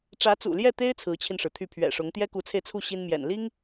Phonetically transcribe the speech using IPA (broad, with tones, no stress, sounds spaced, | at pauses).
ʈ͡ʂ ä˧˥ t͡s ṵ˨˩ l j ɛ˥˩ t̪ e˥ ɪ̯ t͡sʰ ɹ̩˧˥ t͡ɕʰ i˧ n ʂ ɻ̩˩ t̪ʰ y˥˩ pʰ ɥ ɛ̰˨˩ ʂ ʊ˧˥ ŋ t̪ j ɛ˥ k u˧˥ t͡sʰ e˧ ɪ̯ t͡sʰ u˥˩ ɕ i˥ n m j ɛ̰˨˩ n l i˥ ŋ